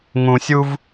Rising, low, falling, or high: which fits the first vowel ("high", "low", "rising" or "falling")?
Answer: low